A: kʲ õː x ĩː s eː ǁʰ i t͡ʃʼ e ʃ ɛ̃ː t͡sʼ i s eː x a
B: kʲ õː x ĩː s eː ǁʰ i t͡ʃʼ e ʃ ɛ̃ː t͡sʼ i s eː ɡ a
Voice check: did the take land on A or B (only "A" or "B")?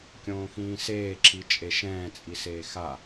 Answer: A